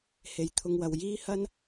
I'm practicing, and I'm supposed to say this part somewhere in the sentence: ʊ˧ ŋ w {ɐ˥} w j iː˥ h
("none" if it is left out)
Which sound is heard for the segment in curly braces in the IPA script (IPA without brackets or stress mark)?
ɐ˨